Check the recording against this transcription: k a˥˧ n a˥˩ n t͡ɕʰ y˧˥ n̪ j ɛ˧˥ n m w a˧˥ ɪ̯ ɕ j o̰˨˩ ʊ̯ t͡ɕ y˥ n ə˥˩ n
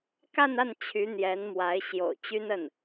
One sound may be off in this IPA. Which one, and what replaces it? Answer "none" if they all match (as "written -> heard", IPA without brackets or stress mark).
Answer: none